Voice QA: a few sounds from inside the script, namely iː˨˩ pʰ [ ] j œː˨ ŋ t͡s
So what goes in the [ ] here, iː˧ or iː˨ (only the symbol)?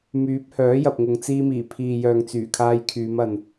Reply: iː˨